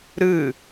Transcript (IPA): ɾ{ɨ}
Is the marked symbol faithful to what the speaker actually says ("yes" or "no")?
yes